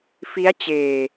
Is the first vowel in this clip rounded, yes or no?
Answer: no